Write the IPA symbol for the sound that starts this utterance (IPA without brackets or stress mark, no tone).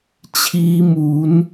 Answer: t͡ɕʰ